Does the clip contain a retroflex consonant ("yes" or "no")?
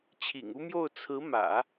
no